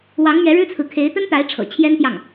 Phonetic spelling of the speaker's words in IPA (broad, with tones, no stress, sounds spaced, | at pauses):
w ɑ˧˥ ŋ m ɥ ɛ˧˥ ɻ ɻ̩˥ t͡sʰ ɹ̩˨ kʰ e˧˥ ɪ̯ t̪ ə˥ n t̪ a˧˥ ɪ̯ ʈ͡ʂʰ ɤ̰˨˩ t͡ɕʰ j ɛ˥ n t̪ j ɑ˥˩ ŋ